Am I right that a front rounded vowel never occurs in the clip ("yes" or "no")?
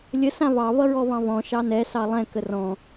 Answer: yes